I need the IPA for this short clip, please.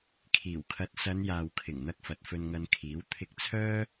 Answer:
kʰiː˨˩wkʰɐ˨˥t̚ sɐ˨˧n jaː˨wkʰɪ˨˩ŋn̪ɐ˧k̚ fɐ˨t̚fɵ˧nŋɐ˧nkʰiː˨˥w t̪ʰɪ˧k̚t͡sʰœː˥

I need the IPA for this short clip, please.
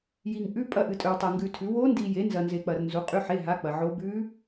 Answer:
ji˧ŋʔʉ˧˥˧ pʼɐ˧˥˧ʔɨ˧tʼɵ˧wtˤa˧ ŋɡʉ˧tʰʉ˨˥ wo˦˥ndi˧je˨˥ nzɐ˧nze˧k͡pɐ˧rnzu˨˥ qʼʉ˧˥˧ħe˧˥˧ɦa˧˥˧k͡pɐ˧ ʕo˦˥ bʉ˦˥

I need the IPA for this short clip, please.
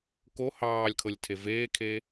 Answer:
ko hɑːlʲkʰɤlʲtʰe veːkʰe

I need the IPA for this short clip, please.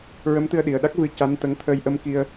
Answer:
ɹə˧˥mt̪ɨ˧ə̯ɗi˨˩ə̯ɗa˦˥k̚ vɨ˧˥ ca˧˥nt̪ə˧˥ŋ t̪ʰəː˧jʔə˧˥mki˧ə̯

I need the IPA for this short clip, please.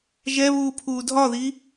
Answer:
ʒɛβuː pʰuːdʱɒði

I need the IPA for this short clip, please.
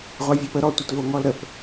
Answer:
ʁʷavʲɔpə ɾɔtʷətvo ŋɔlɾəp

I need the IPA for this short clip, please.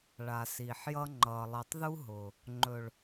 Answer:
ɭa˨siː˨ħjʌ˧ ŋ͡ǃʌː˨lˠi˨tˤðu˦ɦʊː˨ | ŋ͡ǃɵ˨ɭ

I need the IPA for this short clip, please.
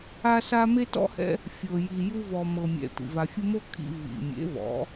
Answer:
a˧sa˧ me˦tɔ̰˦hɛ̰˦ | fʲɤ˨ ji˨ju˧vɔ˨ mɤ˨mʲɛ̰˨ tʷḭ˨va˨fʲu˧mo˦ kʰḭ˧ vḭ˨ mʲḛ˨˦vɔ̰˨˦

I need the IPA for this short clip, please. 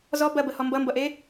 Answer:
zɔ bɐbəhɔ mbʌmbʌʔe

